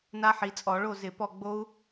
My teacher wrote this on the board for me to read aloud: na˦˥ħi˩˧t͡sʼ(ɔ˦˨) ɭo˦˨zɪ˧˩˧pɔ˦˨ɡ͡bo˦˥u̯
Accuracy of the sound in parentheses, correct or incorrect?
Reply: incorrect: ɔ˧˩˧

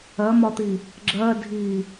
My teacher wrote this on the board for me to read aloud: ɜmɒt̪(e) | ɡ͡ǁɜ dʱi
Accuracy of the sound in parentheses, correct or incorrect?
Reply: incorrect: i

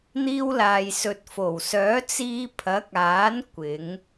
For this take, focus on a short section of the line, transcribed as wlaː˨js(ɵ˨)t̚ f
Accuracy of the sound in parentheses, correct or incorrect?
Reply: correct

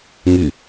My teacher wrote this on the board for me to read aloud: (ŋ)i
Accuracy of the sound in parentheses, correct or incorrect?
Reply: correct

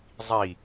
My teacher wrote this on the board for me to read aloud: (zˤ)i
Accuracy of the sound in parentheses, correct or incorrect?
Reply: correct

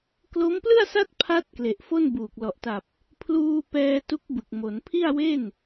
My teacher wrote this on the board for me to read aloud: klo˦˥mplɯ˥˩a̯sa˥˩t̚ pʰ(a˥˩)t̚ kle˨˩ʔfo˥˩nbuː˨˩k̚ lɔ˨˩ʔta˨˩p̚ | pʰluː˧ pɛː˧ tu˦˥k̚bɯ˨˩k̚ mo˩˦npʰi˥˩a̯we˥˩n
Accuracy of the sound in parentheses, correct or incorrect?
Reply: incorrect: a˦˥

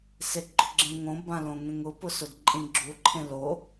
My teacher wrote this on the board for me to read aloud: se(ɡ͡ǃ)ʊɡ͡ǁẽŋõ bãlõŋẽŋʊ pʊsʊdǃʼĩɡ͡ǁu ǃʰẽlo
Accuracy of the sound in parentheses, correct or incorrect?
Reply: correct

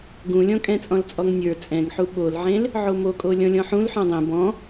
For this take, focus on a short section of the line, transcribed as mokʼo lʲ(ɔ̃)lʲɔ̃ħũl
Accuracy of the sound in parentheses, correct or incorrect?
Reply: correct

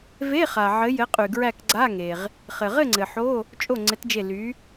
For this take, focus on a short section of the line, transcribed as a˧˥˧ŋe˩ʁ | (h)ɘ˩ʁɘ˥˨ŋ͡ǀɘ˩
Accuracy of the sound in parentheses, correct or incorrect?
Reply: incorrect: χ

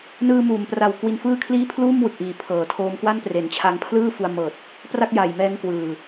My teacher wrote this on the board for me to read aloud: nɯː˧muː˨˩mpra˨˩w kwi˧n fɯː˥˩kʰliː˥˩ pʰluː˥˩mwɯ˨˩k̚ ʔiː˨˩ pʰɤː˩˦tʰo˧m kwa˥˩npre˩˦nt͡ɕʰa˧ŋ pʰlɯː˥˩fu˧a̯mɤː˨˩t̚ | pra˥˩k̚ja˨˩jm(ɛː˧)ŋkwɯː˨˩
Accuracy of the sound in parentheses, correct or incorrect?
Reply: correct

